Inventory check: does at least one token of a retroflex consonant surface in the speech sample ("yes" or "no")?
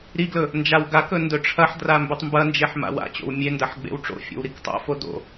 yes